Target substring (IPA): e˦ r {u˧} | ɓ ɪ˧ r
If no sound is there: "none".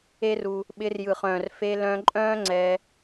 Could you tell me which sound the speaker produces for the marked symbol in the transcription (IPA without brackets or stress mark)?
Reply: u˧